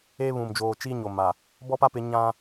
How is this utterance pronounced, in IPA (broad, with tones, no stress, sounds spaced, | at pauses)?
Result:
eː˦ β ũ˨ m d͡ʒ oː˨ t͡ʃ iː˦ ɲ o˨ m a˨ | b ɔ˦ p a˦ p ɪ˨˦ ɲ ã˦